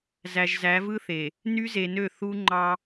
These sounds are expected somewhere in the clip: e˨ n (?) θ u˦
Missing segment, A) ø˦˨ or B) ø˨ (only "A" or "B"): A